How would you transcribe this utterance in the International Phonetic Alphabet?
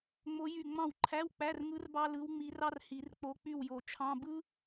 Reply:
ŋ͡m o˧˥ j y˦˨ ŋ͡m ɑ̃˦˨ w ǃʰ æ˧˥˧ w k͡p æ˧˥˧ r ŋ ɯ˧˥ r b ɑ˥ l ɯ˧˥ w ŋ͡m i˧˥ r ɑ˥ r h i˨˩˦ r k͡p o˧˥ k͡p y˦˨ w j o˨˩ t͡ʃʰ ɑ̃˧˥˧ b ɯ˥

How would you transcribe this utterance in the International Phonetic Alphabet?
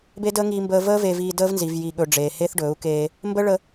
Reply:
b e˦ d əː˦ ŋ iː˧ m b əː˧ v əː˧ v e˨ v iː˨ d əː˦ v n z i˨ v j i˨ ɠ ɵ˨ ɖ͡ʐ eː˨ h e˦ θ ɖ ɵː˨˦ u̯ k eː˧ | m b ə˦ ɭ ə˧

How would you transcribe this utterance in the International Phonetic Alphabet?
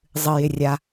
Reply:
zˤ ɨ j ɪ rʲ a

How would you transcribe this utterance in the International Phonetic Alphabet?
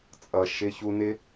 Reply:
t͡sʼ ʌ˧ ʃ ɪ˦ ç u˦ n ɪ˦

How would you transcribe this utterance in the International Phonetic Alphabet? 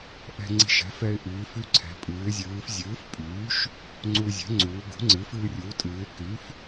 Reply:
ʔ ɛ̤˧ ŋ͡ǀ i̤˧ ʃ ɛ̤˩˥ f ɛ˧ ɪ̯ ʔ iː˩˧ f y˧ ǀʰ ɛ̤˩˧ pʼ ɨː˩˧ ɪ̯ zʲ ɨː˩˧ f zʲ ɨː˩˥ f pʼ yː˩˥ ʃ | ŋ͡ǀ u˧ zʲ ɛ̤˩˥ ŋ͡ǀ uː˩˧ ɡ ṳ˩˥ ŋ͡ǀ ɨ˩˥ f ɨː˧ rʲ uː˩˥ tʼ ɨː˩˧ ɪ̯ k y˩˥ f

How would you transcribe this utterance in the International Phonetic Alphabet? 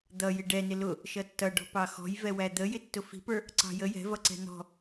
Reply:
d̪ ʌ j ɪ ɖ ɛ n ɪ l ʊ | ʃ ʌ tː ʌ ɖ ɔ̤ p ɑ x ɔ̤ j v ɛ w æ d̪ ə j ɪ tː ʊ f i̤ p ə˞ | ǀ ɑ̤ j ə j ɛ̤ v ʌ ǀ ɛ̤ n ɔ̤

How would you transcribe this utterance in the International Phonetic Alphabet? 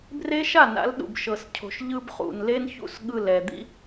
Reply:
b r e˦ ʃ a˦˨ n a̰˨˦ l ɗ ṵ˨ b ʃ ɤ˨ s cʰ o̤˨ ʃ ʎ ɯ˦ b χ ṵ˨ n l e˦ n ç ṵ˦˨ s ɠ ɯ˦˨ l ɛ˨ d̪ ḭ˦

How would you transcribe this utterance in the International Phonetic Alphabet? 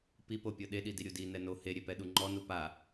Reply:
p i p o pʲ ɤ ɗ e ɗ i d i ɾʲ u d i n ɛ n o h e ɾʲ e p ɛ ɗ u ŋ͡ǃ ɔ n u p a

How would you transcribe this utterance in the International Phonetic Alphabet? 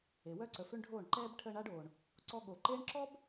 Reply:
e˨ w œ˦ ǀ ə˨ f ø˦ ɳ ɖʱ oː˦˨ ɳ ǃ ɛː˧ b ʈʰ əː˧ ɳ a˧ ɖ oː˨ ɳ | ǀ ɔ˧ ɠ o˨ ǃ eː˦ ɳ ǁ ɔ˦ b

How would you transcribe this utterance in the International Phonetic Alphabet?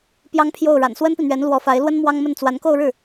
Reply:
p j ɑ˥ ŋ pʰ j o˥˩ ʊ̯ ɻ a̰˨˩ n s w ə˥ n p i˨ n̪ ɥ ɛ˧˥ n l w ɔ˧˥ f a˧˥ ɪ̯ l w ə˥ n m w ɑ˥ ŋ m ə˥˩ n t͡s w a˧˥ n k o˥˧ ʊ̯ ɻ ɻ̩˥˩

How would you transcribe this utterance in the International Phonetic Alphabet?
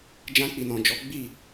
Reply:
d͡ʒ ã˧ k͡p i˨ n ɔ̃˨ d͡ʒ ɔ˨˦ ɡ͡b i˦˨

